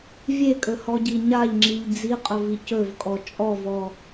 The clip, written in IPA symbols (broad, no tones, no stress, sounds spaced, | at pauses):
vʲ e kʼ ɵ h ɔ ɟ i ɲ a ʎ ŋ͡ǁ i ʎ d͡z i qʼ ɵ v i c ɵ v kʼ ɔ t͡ʃʼ ɔ v ɔ